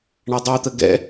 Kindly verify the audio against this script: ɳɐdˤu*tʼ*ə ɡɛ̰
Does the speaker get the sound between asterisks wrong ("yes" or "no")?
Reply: yes